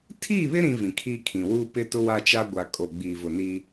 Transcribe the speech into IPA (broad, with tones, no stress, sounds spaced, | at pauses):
tʰ iː˦˨ β ɪ˦ ɾ ĩ˦ v ĩ˨ kʰ iː˦ kʰ ĩ˨ w uː˦ p ɪ˦ t ʊ˦ w a˦ t͡ʃ a˦ ɡʷ a˨ kʼ o˨ ɡ͡b iː˨ v ʊ˨ n i˦